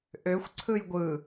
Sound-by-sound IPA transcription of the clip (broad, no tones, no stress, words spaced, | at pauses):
ʔøxʷ ǀʰɯjɡʷɯ